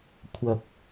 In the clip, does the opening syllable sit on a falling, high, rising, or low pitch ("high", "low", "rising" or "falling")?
low